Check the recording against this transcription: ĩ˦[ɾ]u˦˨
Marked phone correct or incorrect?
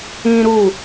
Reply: correct